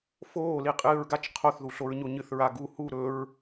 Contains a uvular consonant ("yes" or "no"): yes